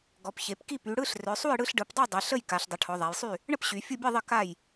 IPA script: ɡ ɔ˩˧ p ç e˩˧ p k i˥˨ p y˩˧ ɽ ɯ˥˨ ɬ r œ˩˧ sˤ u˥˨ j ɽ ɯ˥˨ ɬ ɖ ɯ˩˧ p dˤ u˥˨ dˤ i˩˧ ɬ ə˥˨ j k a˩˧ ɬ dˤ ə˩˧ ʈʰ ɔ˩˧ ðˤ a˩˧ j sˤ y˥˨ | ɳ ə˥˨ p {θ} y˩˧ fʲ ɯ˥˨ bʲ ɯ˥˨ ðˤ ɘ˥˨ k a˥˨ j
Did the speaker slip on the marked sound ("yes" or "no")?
yes